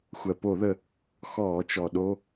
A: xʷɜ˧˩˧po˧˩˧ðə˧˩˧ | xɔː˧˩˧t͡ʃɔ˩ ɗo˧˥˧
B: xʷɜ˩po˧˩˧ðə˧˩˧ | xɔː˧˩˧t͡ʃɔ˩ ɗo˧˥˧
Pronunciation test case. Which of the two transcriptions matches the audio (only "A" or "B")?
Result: B